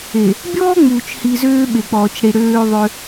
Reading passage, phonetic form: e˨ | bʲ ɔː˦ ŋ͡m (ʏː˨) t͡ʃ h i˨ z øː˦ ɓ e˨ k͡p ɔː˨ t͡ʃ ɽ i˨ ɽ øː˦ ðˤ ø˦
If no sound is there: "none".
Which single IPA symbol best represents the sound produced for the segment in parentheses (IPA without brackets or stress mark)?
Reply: uː˨